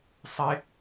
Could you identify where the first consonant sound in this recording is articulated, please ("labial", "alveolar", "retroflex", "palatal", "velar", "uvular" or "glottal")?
alveolar